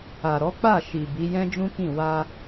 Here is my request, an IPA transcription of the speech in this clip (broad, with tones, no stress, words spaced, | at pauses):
a˨ɾɔ˨˦ k͡pa˦˨ ʃi˨ bi˨˦ jɛ̃˦d͡ʒũ˦kĩ˦˨ wa˧